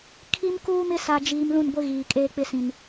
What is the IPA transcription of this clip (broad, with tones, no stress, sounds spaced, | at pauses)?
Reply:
kʰ i˦ m k uː˦ m ɪ˦ s a˨ d͡ʒ iː˨ m l ũ˦˨ n ɡʷ ɪ˦ ɣ iː˨ kʼ eː˦ k͡p ɪ˦ s ĩ˨ n